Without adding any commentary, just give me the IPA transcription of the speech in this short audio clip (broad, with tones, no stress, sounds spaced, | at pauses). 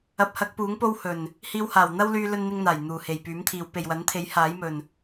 ɐ˨˥ p̚ h ɐ˨˥ k̚ p uː˨˥ ŋ p o˥ w h ɵ˨˩ n | h iː˧ w h aː˨˩ w n̪ ɐ˥ w l yː˧ l ɵ˥ n n̪ ɪ˥ ŋ n̪ aː˨˩ j n̪ uː˨˩ h e˨˩ j p yː˨˥ m t̪ʰ iː˨˧ w p e˨ j w ɐ˨˥ n t̪ʰ e˨˥ j h aː˨˥ j m ɵ˨ n